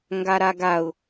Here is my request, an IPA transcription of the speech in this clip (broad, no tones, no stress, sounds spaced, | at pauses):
ŋ ɡ a ɾ a ɡ a ʊ̯